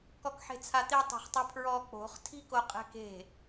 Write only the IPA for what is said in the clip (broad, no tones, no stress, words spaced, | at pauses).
kɔkħe̤t͡sʰat̪i tˤe̤χtˤipʰɹɔ k͡po̤χ tʰi̤ko qʼɛ̤ke̤